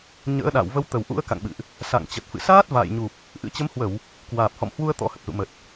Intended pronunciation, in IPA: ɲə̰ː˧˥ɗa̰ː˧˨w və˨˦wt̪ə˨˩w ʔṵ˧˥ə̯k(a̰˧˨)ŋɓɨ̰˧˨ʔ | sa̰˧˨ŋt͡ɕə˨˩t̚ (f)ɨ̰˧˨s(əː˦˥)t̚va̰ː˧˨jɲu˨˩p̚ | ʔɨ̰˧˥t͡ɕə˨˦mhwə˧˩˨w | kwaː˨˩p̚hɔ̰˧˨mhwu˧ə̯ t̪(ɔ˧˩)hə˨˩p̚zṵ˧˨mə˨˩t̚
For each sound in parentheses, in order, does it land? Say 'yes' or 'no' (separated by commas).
yes, yes, no, no